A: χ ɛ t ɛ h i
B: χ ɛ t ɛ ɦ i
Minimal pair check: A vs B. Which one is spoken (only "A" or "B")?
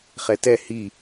A